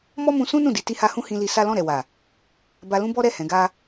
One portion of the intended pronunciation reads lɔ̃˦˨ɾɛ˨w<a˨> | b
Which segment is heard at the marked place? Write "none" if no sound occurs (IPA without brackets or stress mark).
a˨